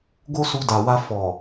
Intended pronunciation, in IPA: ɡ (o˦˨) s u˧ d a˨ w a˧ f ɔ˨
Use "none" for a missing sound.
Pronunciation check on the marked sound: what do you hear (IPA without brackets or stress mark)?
o˦